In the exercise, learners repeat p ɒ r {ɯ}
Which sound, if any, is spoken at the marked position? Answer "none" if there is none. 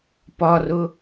ʊ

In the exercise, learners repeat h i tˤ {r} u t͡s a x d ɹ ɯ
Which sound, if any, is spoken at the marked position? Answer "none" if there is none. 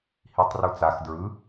r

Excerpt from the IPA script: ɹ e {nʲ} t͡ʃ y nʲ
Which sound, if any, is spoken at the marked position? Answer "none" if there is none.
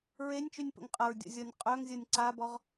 nʲ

